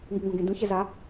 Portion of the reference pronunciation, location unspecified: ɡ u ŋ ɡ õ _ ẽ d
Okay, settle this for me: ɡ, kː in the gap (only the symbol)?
ɡ